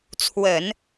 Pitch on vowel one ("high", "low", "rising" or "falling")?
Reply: low